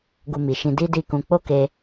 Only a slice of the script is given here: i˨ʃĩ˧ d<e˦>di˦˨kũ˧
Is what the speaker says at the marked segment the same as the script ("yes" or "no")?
no